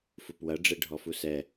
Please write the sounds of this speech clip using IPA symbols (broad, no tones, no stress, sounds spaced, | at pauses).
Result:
f u p w ɐ ɖ͡ʐ e ɖʱ ɔ f u s ɛ